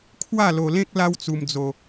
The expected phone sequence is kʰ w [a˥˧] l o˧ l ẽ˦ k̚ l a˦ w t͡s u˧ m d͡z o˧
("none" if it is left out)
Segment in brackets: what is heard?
a˥˧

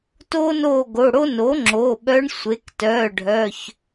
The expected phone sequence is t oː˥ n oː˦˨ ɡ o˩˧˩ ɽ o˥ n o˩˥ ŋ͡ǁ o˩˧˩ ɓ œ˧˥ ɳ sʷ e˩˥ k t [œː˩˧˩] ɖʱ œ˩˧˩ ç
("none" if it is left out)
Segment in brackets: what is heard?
œː˩˧˩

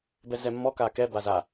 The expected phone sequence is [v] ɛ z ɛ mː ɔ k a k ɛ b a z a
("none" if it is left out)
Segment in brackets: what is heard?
b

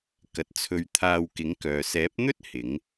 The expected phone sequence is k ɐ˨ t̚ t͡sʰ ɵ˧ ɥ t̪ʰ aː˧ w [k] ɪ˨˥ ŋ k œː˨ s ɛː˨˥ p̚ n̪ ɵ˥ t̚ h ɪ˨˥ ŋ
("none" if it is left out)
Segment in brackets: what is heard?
k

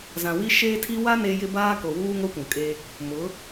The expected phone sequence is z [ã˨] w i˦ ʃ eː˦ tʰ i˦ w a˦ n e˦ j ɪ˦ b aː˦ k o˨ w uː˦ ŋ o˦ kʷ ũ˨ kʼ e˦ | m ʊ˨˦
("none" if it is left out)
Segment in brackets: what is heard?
ã˨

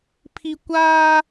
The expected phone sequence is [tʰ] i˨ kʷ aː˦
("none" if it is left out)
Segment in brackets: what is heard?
pʰ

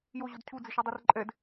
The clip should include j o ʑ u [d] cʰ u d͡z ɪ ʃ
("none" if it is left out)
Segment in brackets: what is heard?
d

